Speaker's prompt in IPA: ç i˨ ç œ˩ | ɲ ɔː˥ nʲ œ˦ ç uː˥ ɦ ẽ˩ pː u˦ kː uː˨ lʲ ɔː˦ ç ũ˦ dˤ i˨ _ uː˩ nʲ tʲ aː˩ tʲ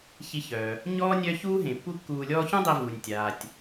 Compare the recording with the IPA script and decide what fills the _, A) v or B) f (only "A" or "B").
A